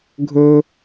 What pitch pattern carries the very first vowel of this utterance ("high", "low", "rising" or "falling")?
high